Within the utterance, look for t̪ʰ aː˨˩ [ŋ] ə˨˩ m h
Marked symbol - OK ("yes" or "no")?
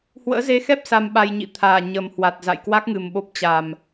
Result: no